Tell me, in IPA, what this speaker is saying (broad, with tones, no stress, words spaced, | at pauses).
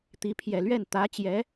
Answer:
t̪i˧˥ pʰjɛ˨˩lɥɛ˥˩n t̪ä˧˥t͡ɕjɛ˧˥